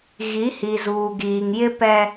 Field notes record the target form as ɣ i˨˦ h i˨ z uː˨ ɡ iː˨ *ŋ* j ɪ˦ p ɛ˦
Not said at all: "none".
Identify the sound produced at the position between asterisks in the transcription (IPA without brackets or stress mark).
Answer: ŋ